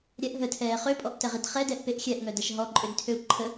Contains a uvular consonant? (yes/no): yes